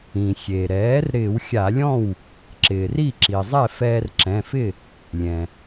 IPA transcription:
ĩ˩xʲe˩ɾɛː˩˥r ɾɪː˧˩˧wxʲa˧˩˧lʲɔ̃˥˩w | ǁɪː˩ri˥˩ǁi˩zˤɛ˥˩ fɛː˧rǁɛ̃˩˧˩fɪ˥˩ | lʲɛ̃˩

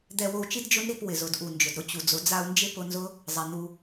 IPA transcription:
d̪ɛ˧wo˧u̯t͡ʃi˦d d͡ʒʊ˦nɾi˧p wɪ˨zʊ˨dʔu˨ nd͡ʒʊ˨dɾʊ˧ t͡ɕu˨d͡zʊ˨˦ d͡za˧u̯nd͡ʒɪ˦pʊ˧nzʊ˦ | zˤɛ˨n̪u˧

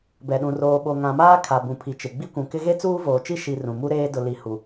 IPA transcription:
bɛ˨ɗũ˨ roː˨ɓo˨ŋã˨maː˦ kʰa˨bũ˨pʰi˨t͡ʃɪ˨ ɡ͡bi˦kʷũ˨kɪ˦ ɣe˦t͡suː˦voː˨t͡ʃi˦ ʃi˨ rũ˨ mu˦ɾeː˦ dʊ˨li˨ hu˨

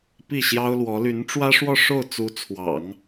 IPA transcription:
pi˥˩ɕjɑ˥ʊ̯lwɔ˧˥ ly˧˥nʈ͡ʂwä˥ʂwɔ˥˧ ʂo˥˩ʊ̯ t͡su˧˥t͡sʰwɑ̰˨˩˦ŋ

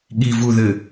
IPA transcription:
ɠivuðɘ

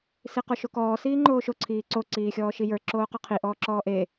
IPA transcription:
siqoʃokɔː siːŋ͡ǃoːʃo ǀʰiːǀo ǀiːxʲɔːʃijə˞ ǁoːqɔqʰi ʔɔːǁɔːʔeː

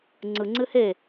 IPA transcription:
ŋ͡ǀɯŋ͡ǀɨ he

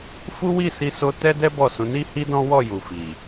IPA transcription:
fu˦wi˦˨si˧ so˧tɛ˦dɛ˦ bɔ˦˨sũ˨˦ ni˦hi˦dɔ̃˦wɔ˦˨ ju˨fi˨

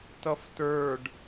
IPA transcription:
tʌftə˞ɖ

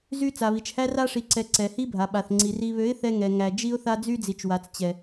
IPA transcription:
zy˦ t͡sa˨βi˨t͡ʃhæ˦ ra˦ʂi˨ǀɛ˨ ǀɛ˨hi˦bʱa˨ ɓa˨θŋ͡ǀi˨ ri˨βø˨˦ɪ̯ θɛ˦ŋɛ˨ ŋæ˨d͡ʒi˦ʊ̯θa˦ d͡zy˦d͡zi˨t͡ʃwa˨t͡s t͡ɕɛ˨

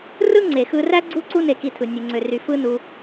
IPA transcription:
rɯ˦ŋ͡ǀe˨xɯ˧ræ˦ ɡ͡ǀu˦ǀu˦ ne˧ki˧tʰɯ˨ nʲe˧ŋ͡ǀø˧ry˧ fɯ˦nu˧

